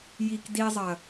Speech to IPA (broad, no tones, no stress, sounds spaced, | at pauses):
j i k d i zˤ ɐ